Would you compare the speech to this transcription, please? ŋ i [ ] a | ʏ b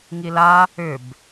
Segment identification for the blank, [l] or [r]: l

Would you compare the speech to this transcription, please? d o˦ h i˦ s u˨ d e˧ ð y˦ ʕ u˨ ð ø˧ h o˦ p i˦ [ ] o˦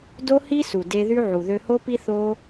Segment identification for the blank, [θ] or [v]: θ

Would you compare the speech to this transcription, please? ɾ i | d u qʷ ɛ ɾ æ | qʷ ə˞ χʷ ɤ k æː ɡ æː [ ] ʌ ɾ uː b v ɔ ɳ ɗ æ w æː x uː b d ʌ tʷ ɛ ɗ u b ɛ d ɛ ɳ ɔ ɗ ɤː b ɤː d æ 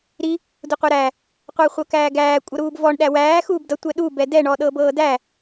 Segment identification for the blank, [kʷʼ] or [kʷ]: kʷʼ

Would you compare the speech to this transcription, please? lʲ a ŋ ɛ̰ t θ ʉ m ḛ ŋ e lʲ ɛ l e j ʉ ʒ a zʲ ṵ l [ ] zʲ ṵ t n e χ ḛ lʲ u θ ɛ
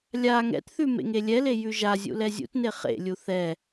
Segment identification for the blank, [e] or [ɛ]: ɛ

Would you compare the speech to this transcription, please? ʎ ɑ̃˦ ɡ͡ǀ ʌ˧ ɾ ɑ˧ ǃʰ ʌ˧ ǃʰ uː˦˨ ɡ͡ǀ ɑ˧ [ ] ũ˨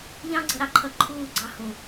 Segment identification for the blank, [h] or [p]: h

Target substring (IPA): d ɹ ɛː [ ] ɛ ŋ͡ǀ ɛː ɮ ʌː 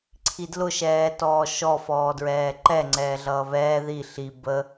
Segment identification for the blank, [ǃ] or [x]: ǃ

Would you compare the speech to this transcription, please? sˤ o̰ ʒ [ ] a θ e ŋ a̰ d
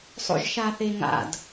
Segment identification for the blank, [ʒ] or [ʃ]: ʃ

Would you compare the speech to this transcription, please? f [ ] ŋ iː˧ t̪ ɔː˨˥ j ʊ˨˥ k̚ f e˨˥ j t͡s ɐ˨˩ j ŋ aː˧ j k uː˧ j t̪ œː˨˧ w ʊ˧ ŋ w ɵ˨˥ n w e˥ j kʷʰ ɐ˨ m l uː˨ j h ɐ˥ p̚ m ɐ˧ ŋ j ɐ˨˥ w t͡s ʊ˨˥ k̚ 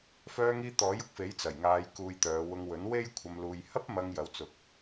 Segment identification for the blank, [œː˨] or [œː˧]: œː˧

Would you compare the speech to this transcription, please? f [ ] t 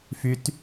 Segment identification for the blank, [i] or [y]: y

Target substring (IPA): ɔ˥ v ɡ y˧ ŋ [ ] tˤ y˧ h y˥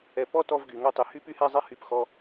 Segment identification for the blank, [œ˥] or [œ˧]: œ˥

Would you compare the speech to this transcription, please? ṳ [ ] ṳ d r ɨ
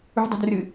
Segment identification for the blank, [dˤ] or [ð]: dˤ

